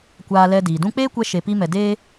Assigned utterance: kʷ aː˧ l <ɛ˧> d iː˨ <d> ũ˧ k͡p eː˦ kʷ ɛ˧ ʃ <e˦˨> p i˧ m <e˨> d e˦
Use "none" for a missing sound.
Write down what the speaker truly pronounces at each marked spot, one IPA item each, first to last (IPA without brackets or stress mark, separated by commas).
ɛ˧, d, e˨, ɛ˨